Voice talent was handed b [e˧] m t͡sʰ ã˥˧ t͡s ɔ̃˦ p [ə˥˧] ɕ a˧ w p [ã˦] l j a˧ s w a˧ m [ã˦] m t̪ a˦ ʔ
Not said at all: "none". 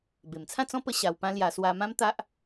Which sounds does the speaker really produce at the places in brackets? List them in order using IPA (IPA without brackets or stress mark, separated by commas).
e˨˩, ə˧, ã˦, ã˦